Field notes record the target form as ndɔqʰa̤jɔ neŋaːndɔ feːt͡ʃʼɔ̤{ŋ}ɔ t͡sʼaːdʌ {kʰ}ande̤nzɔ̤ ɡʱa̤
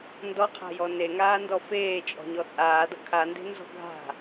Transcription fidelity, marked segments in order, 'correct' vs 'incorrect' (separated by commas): incorrect, correct